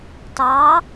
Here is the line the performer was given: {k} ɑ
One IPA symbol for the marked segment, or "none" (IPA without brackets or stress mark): t